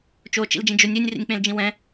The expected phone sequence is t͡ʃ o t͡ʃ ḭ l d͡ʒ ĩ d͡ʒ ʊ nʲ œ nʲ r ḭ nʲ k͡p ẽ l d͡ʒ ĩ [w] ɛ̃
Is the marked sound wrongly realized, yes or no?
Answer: no